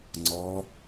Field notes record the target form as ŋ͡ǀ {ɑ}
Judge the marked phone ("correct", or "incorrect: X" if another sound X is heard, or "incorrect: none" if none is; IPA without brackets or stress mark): incorrect: ɔ